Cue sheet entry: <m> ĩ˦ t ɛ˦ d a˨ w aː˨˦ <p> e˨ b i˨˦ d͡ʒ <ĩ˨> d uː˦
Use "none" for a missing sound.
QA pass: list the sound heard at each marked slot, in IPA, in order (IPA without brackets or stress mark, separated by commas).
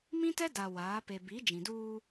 m, p, ĩ˨